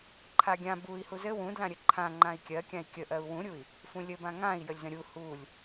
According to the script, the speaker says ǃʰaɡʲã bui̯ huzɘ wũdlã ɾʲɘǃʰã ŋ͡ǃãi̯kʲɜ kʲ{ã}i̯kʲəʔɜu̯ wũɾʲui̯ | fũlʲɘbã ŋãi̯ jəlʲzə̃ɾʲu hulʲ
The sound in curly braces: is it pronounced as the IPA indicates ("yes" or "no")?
yes